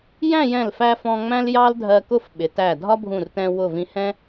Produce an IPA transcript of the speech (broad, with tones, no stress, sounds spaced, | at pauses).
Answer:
j æ̃˥˧ j ɛ̃˧˩ l f æ˧ f ɔ̃˧ ŋ͡m æ̃˥ l j ɑ˥ l dʱ ɜ˧ k ʊ˥˧ f ɓ ɪ˩˧ t æ˧˩ dʱ ɒ˥ bʱ ũ˧˩ r t ɛ̃˧ w ʊ˧˩ v ĩ˧ h ɛ̃˥